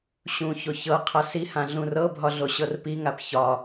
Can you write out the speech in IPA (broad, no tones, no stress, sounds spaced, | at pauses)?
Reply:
ɕ ũ ç o ç ɤ qʰ a s i h ã ɮ ũ r ɤ bʱ ɒ ɮ o ɕ ɤ r p i ŋ a p ç ɒ